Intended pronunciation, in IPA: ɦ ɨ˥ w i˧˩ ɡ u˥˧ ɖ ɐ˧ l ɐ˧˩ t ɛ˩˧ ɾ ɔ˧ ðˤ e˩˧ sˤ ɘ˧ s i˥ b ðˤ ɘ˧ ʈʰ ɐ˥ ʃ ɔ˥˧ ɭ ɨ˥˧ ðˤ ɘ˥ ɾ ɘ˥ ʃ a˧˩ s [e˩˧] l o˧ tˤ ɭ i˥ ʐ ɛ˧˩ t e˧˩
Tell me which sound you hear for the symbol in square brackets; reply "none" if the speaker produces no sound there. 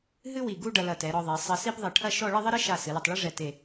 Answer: ɨ˩˧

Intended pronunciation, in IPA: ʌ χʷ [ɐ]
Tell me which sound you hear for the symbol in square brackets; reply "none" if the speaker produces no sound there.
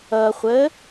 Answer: ə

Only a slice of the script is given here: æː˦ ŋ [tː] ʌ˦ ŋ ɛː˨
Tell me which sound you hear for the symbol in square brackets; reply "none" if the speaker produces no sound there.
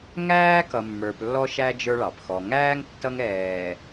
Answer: tː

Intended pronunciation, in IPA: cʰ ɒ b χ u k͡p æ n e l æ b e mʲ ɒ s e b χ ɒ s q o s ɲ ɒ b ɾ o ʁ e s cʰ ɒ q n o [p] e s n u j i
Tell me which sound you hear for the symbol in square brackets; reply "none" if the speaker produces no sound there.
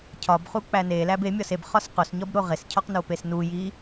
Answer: p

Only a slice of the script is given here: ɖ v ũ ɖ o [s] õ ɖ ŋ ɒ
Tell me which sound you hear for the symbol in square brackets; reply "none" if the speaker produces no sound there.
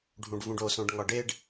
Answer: s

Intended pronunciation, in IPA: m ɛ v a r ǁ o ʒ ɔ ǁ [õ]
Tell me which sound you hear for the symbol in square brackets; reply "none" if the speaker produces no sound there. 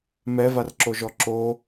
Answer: o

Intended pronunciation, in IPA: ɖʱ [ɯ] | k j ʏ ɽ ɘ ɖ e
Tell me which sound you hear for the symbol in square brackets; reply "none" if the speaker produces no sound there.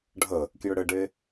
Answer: ə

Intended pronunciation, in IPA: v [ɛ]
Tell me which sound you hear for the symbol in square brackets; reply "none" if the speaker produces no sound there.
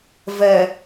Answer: ɛ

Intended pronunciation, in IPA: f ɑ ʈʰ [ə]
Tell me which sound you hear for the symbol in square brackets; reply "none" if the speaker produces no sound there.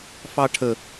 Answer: ə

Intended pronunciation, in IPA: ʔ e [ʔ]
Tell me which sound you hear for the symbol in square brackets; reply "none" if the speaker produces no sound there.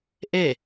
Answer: none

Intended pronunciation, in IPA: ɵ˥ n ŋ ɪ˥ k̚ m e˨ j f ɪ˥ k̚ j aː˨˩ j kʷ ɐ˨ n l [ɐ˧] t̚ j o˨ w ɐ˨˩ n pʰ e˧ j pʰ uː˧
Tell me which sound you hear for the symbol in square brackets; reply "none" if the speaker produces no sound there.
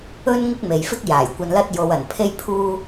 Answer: ɐ˧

